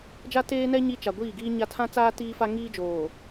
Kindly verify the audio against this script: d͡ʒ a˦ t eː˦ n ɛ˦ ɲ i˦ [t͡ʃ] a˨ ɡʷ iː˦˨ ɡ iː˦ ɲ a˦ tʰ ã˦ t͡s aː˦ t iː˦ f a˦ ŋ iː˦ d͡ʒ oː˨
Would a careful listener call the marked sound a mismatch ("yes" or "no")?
no